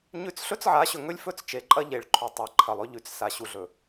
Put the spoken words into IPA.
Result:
ɲ ʉ˦ t͡s ɬ ɵ˦ t͡s ʕ a˨˦ ɕ ɵ˨ ŋ ɵ˦ lʲ f ɵ˦ t͡s t͡ʃ e˨ ǃʼ ɐ˦ ʎ e˨ ɭ ǃʰ ʉ˨ tˤ a˨ ǃʰ ɐ˨ lˠ ɵ˦ ʎ ʉ˨ t͡s s a˨ ɕ u˨ ɮ ɵ˨

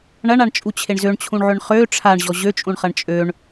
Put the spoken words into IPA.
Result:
ɳ ɐ ɳ a ɳ t͡ʃʼ u t͡ɕʰ e ɳ z ø ɳ t͡ɕʰ ũ ɳ ʕ ʏ ɳ χ ø ʈ͡ʂʰ a ɳ ʑ ɔ ʑ ø t͡ʃʼ ũ ɳ χ ɐ ɳ t͡ʃʼ ø ɳ

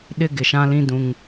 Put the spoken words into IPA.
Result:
ɗ ɪ˦ ɡ ɪ˨ ʃ ã˦ l ĩ˦ d ũ˦ ŋ

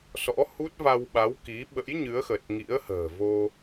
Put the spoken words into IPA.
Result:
s ɔ̰˧˥ h u˦˥ t̚ v a˧ w ɓ a˨˦ w k i˨˦ ɓ ə̰˧˥ j ɲ ɨ˨˦ ə̯ x ə˨˩ t̚ ŋ ḭ˧˥ ə̯ h ə̤ː˨˩ v o˧

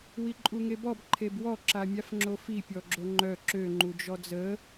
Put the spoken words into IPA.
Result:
w i ǃʼ u ŋ e b ɔ b ǃʰ e b w ɔ ǁ a mʲ a f ŋ͡ǁ o f i pʲ ɔ ɡ͡ǁ o ŋ͡ǃ œ ǁ ø ŋ͡ǃ u d͡ʒ ɔ d͡z ə

